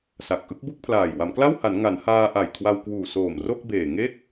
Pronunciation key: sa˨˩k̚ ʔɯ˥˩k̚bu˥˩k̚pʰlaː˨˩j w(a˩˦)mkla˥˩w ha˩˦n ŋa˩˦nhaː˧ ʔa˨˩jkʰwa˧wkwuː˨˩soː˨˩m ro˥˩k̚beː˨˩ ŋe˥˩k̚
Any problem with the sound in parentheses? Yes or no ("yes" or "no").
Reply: no